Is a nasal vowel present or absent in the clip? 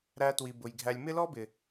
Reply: absent